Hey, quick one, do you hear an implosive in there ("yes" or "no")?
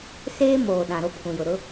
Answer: yes